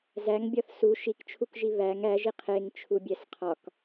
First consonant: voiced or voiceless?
voiced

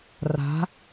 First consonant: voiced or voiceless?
voiced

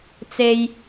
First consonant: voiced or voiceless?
voiceless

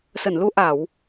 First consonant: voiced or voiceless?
voiceless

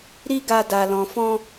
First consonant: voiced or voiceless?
voiced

